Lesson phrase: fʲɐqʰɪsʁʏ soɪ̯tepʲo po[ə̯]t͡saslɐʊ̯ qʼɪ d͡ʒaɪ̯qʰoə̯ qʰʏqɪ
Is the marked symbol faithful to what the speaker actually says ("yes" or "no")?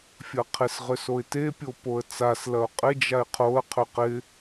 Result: yes